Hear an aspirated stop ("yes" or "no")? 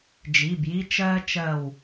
no